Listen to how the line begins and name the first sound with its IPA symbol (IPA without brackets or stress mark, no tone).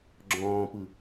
ɡ͡ǁ